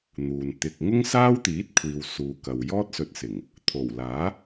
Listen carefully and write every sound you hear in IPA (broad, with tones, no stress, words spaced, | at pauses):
n̪uː˨n t̪ɪ˧k̚ ŋʊ˥ŋsaː˥wt̪iː˨˥t̚kʷʰiː˨w suː˨kɐ˨w jɔː˥t̚sɵ˧t̚sɪ˨˩ŋ | t̪ʰo˨˩wlaː˨˥